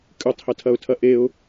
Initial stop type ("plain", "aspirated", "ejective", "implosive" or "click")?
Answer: ejective